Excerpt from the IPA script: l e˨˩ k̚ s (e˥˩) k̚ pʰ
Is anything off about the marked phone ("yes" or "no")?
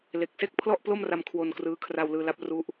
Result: no